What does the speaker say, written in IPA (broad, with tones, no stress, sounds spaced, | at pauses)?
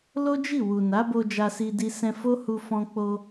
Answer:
l o˦ d͡ʒ i˦˨ w u˨ n a˨˦ b o˧ d͡ʒ a˧ s i˧ d i˧ s ɛ̃˧ f o˦ h u˧ f ɔ̃˧ k͡p o˧